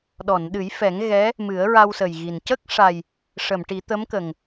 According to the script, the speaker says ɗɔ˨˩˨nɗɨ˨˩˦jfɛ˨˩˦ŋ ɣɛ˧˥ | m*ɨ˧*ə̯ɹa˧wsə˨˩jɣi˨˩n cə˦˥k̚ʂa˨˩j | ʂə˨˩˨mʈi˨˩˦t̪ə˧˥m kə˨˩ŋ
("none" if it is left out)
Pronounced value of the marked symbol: ɨ˨˩˦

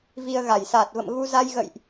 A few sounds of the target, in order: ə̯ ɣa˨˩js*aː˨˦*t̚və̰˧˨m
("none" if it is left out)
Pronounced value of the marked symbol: aː˨˩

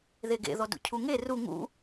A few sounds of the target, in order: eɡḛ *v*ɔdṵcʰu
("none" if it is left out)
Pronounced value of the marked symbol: ð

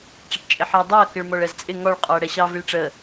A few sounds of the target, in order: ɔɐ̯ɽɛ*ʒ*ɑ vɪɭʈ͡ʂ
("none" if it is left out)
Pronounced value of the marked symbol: ɕ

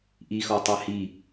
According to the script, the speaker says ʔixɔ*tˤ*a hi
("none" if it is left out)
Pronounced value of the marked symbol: tˤ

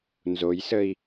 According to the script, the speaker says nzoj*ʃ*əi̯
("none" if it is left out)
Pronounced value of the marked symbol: s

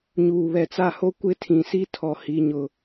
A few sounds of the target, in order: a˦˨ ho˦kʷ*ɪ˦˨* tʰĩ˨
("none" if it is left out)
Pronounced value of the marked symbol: ɪ˦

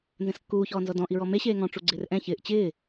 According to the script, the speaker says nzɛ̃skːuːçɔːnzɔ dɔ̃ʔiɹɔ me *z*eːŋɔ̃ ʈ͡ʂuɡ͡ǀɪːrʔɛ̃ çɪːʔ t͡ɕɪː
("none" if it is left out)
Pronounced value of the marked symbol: ɕ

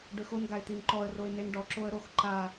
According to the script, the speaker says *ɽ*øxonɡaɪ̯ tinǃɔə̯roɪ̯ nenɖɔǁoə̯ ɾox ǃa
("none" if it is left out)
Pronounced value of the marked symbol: ɖ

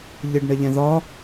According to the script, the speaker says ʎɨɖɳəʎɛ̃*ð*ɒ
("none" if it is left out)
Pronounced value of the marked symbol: ð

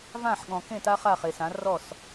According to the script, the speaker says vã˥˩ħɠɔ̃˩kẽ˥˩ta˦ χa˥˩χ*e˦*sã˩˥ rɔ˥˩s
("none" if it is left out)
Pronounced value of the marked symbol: e˩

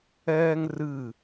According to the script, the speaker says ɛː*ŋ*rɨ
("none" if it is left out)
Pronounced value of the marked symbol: ŋ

